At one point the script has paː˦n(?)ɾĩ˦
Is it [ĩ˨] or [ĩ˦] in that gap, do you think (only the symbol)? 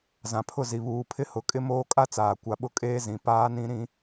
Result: ĩ˦